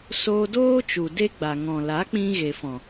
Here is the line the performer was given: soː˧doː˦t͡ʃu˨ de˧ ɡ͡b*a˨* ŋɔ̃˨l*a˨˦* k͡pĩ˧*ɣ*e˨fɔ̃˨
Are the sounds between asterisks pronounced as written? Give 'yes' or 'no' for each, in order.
yes, yes, yes

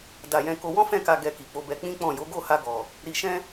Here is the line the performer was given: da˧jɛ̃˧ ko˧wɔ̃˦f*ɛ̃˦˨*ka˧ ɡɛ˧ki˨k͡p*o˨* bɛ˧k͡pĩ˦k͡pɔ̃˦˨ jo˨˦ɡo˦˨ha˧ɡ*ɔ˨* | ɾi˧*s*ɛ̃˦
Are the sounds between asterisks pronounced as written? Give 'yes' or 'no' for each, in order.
yes, no, yes, no

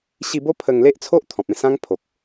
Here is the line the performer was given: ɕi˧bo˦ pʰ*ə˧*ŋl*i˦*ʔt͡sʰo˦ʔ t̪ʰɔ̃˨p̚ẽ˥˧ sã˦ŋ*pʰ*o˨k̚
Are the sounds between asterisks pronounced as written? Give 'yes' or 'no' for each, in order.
yes, no, yes

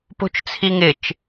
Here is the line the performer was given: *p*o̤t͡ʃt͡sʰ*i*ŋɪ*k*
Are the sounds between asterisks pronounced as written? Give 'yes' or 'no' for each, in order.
yes, yes, no

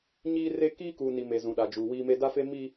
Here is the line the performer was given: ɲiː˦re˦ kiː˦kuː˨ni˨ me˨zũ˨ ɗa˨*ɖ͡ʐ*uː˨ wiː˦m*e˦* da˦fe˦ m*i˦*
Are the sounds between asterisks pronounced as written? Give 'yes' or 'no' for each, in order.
no, yes, yes

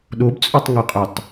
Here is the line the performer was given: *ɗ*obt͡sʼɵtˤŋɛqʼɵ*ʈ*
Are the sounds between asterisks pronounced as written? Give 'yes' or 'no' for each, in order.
yes, no

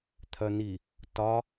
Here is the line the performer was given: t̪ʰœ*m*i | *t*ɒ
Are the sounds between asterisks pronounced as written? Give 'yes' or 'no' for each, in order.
no, yes

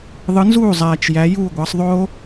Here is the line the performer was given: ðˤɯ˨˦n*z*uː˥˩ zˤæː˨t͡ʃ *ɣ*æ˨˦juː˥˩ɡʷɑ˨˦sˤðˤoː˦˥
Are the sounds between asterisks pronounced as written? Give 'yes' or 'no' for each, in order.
yes, no

